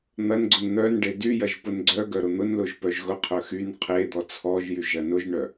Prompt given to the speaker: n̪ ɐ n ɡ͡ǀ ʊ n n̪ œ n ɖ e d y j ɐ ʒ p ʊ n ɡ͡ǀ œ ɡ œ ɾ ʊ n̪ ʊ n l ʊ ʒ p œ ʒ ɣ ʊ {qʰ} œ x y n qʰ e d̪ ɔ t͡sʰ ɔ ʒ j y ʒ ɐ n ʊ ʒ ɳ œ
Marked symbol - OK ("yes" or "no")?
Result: yes